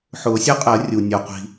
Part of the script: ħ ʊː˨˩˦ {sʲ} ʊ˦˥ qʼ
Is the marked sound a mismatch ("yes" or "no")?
no